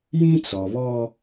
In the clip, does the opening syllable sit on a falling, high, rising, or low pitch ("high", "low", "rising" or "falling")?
high